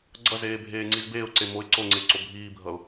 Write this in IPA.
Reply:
ɡ͡ǀ ʌ z eː bʱ eː ŋ͡ǀ i z b eː ʊ̯ ǀ e m o ɪ̯ ǀ o ŋ͡ǀ e ǀ o bʱ iː bʱ ʌ ʊ̯

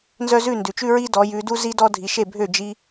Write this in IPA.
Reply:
n z œ˦ z ʉ˥˨ n d ʉ˨ t͡ʃ ʉ˦ ɹ i˦ d ɔ˨˦ j ʉ˨˦ d u˦ z i˦ d ɔ˦ dʱ i˨˦ ʃ e˥˨ bʱ ø˥˨ d͡ʒ i˦

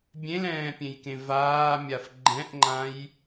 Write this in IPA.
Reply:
bʲ ẽ l ɛ̃ː pʲ ẽ j k ẽ v aː mʲ a f ɡ͡ǃ ɛ̃ ʔ ŋ͡ǃ ã j

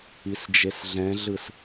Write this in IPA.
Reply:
i s d͡ʒ e s ɮ ɛ̃ ɮ ɯ s

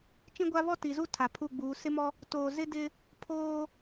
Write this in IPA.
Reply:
t͡ʃ ĩ˦ ɡʷ a˦ β ɔ˦ t i˨ z u˦ tʰ a˨ pʰ u˦˨ ɡ͡b uː˨˦ s ɪ˦ m ɔ˦ | t oː˨ z ɪ˦ d ɪ˦ | pʰ oː˦

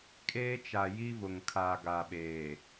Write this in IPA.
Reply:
kʼ eː˦ t͡ʃ a˨ j i˦ v ʊ˨ ŋ kʰ aː˨ ɡ a˨ ɓ eː˨

